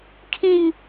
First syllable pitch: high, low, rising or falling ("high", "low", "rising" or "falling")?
high